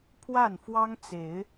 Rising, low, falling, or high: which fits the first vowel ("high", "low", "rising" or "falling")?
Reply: falling